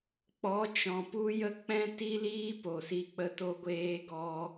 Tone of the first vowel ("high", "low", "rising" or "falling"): rising